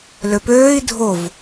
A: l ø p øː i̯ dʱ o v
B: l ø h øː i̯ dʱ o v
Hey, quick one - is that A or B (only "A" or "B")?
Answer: A